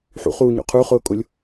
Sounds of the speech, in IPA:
ħ ṵ χ uː ɲ o̰ qʰ u χ ʊː kʼ ʊ lʲ

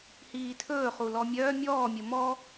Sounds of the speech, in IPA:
h iː tʰ ɵː χ u l ɔ mʲ œː mʲ ɔː mʲ ə m ɔ

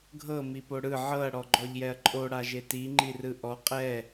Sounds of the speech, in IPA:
ɡʱ ɤ m i p o ɽ ɯ ʕ ɤ ɐ̯ ɽ ɔ ɡ͡ǃ ɔ ʎ j ɛ ɐ̯ ǃʼ o ɽ a ʒ e t i ŋ͡ǃ i r ɯ ʔ ɔ qʼ ɛ

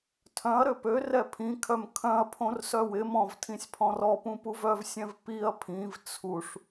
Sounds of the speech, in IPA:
tʰ œ̃ ɐ̯ ɾ ø p ø r ɛ pʰ ĩ kʰ œ m kʰ œ̃ ɐ̯ pʰ õ r s œ w ɪ m ɔ̃ v tʰ ĩ sʲ pʰ ɔ̃ r ɔ p ũ p u v œ v sʲ ɛ̃ v p i ɐ̯ pʰ ĩ v t͡sʰ u ʂ

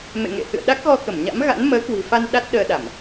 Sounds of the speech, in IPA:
m ḛ˧˨ ŋ ḛ˧˨ h ɨ̰˧˨ ə̯ ɗ a˦˥ k̚ ɣ ɔ˧ k ə˧˩ m ɲ a̰˧˥ m ɣ a̰˧˥ n m əː˨˦ k w i̤˨˩ f a˧ n ɗ a˦˥ t̚ ɗ əː˧ ɗ a˧˩˨ m

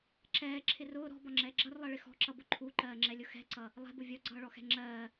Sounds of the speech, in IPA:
ǁ ɛː ǁʰ ɪ r ʊː ɾ ɔ̤ b ɒ ŋ͡ǁ ɛː ɡ͡ǁ ʌ r lˠ ɜ ɭ ɪ x ɔ̤ ǁ ʌ b ʊ ǃʰ u ǃ ɜː ŋ͡ǁ ɛ lʲ ʊ x ɛ̤ ǀ ʌ | lˠ ɛ̤ b ʊ vʲ ɔ ɡ͡ǀ ʌː ɭ ɔ x ɛ̤ ŋ͡ǁ ɜː

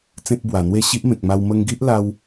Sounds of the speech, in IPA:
t͡s ẽ˦ t̚ b w a˨˩ n̪ w e˥˧ ɕ i˦ ʔ m ẽ˨ k̚ m a˧ w m ə˧ ŋ ɡ i˦ ʔ l a˦ w

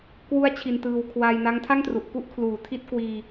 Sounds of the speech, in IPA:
k w u˦˥ a̯ t͡ɕʰ i˧ n t ɯː˧ w kʰ w a˧ j n a˦˥ ŋ tʰ a˥˩ ŋ t r u˨˩ ʔ k u˥˩ ʔ kʰ l uː˨˩ tʰ i˥˩ t̚ k w iː˧

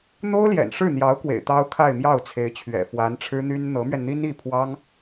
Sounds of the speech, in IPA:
n̪ o˥ ʊ̯ l j ɛ̰˨˩ n ʂ ɻ̩˥˩ n̪ j ɑ˧˥ ʊ̯ k w ḛ˨˩ ɪ̯ t̪ ɑ˥ ʊ̯ kʰ a˥˧ ɪ̯ m j ɑ˥˩ ʊ̯ t͡sʰ e˧˥ ɪ̯ t͡ɕʰ ɥ ɛ̰˨˩ f w a˧˥ n ʈ͡ʂʰ ɻ̩˥ n̪ y˥ n n̪ ɤ˧˥ m ɥ ɛ˧ n n̪ i˥ n i˥˩ pʰ w ɑ˥ ŋ

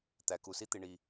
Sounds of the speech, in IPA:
t̪ æ˨ k u˨ s i˦ t̪ i˨ ɳ i˨

